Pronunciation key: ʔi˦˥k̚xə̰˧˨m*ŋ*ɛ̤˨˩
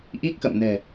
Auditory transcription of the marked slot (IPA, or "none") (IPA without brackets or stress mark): n